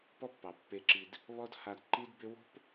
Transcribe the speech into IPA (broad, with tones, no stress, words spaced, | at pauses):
pɔ˦pːɑ˨ pːe˧ǁi˧d | βɔ˦dha˧d ǃi˦dbʏ˦ wo̤˦p